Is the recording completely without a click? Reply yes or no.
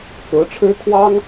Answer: yes